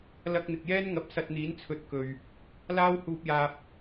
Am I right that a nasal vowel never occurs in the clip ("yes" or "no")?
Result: yes